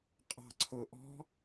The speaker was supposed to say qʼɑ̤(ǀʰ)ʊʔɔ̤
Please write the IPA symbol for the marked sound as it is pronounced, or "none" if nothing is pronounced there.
ǀʰ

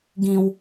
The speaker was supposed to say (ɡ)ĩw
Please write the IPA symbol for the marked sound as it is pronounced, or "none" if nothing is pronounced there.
ɡ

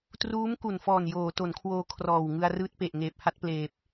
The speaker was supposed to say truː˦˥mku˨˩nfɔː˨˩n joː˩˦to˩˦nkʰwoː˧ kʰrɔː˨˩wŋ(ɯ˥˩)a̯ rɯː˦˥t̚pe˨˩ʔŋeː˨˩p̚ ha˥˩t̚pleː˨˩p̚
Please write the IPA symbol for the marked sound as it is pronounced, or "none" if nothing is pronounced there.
ɯ˧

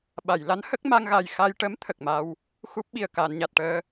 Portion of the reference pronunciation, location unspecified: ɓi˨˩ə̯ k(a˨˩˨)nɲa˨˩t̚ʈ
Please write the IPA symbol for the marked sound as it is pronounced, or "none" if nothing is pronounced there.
aː˨˩˨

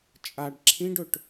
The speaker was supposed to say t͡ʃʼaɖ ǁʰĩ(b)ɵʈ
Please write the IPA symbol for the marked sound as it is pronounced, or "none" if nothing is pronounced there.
ɖ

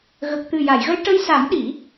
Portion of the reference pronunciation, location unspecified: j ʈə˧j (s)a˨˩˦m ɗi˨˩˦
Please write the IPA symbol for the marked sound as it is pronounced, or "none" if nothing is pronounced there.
s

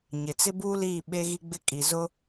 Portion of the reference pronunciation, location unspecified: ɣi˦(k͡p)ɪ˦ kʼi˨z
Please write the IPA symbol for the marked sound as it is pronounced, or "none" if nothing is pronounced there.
ɡ͡b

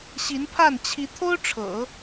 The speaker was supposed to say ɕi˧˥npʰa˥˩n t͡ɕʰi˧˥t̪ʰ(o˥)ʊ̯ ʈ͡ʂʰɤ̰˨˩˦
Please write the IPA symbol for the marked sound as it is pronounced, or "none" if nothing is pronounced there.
o˥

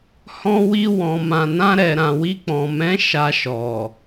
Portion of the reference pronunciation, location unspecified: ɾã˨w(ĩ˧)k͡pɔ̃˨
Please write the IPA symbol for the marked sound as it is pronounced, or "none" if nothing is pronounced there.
i˧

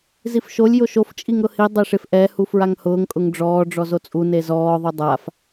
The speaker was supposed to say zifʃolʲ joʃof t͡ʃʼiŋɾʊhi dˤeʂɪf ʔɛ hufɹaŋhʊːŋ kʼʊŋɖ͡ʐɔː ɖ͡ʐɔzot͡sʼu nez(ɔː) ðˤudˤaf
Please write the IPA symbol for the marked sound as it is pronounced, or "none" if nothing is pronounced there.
ɔː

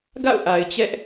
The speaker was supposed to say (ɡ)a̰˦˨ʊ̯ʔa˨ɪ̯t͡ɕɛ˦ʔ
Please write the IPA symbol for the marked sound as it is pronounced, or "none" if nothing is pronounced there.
ɡ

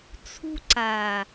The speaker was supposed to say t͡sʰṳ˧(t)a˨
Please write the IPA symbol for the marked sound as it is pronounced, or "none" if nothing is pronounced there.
ǀ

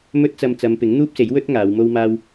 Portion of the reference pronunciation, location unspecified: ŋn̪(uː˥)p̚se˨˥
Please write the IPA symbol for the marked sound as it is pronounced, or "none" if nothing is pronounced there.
uː˥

